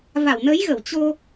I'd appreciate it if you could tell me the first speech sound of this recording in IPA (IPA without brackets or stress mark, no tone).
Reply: v